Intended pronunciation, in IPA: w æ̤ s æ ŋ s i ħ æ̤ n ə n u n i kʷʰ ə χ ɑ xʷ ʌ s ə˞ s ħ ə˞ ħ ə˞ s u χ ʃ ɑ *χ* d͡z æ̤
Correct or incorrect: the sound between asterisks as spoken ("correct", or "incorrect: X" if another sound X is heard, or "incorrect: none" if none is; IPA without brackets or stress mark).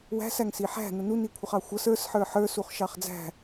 correct